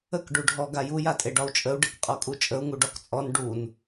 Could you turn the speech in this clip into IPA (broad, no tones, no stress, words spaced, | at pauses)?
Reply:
ək ɖuɖʱɔ ɡaju jatʼeɖɒu̯t͡ʃʼəu̯ ɖekqʼɔkʼut͡ʃʼəu̯ ŋuɖɒkt͡sʼɔn ɖun